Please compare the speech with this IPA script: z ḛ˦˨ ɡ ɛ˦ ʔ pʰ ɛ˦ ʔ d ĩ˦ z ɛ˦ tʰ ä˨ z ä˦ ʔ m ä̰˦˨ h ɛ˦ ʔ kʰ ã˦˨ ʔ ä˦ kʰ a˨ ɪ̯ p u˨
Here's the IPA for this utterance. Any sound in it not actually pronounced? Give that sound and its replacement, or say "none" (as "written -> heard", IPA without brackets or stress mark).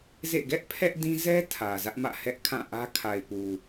none